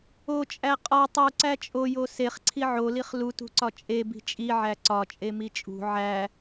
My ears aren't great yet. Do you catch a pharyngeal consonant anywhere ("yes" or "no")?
yes